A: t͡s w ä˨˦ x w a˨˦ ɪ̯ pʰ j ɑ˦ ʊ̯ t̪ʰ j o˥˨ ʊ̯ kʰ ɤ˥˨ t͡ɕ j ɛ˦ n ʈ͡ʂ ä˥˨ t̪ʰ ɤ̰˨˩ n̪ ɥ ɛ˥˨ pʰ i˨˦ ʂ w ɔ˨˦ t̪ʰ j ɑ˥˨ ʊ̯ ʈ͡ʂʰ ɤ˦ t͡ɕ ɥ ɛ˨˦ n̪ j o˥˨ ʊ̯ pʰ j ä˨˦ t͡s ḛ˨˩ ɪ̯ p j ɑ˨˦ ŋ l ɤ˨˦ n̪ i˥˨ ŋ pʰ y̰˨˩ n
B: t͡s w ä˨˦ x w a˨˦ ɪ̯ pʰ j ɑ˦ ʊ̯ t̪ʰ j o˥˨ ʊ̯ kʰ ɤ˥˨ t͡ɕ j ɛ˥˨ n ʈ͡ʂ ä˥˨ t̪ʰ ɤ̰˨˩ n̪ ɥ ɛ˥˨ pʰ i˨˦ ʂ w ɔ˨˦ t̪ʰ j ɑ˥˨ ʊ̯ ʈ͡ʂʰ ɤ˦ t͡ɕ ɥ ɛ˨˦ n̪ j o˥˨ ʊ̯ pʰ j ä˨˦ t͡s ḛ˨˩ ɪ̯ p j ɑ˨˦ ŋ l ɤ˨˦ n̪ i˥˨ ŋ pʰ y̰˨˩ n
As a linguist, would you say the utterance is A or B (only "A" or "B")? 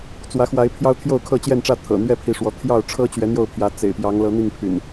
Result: B